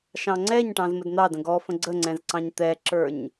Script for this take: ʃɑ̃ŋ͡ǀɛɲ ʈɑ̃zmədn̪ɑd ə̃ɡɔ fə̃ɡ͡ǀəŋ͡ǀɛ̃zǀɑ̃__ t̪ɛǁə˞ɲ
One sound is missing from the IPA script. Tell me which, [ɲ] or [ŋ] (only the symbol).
ɲ